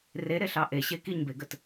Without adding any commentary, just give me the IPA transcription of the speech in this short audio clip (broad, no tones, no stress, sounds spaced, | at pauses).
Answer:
r e ɾ e ɬ ɑ ʔ e ɕ e k i ɲ b e ɡ ə t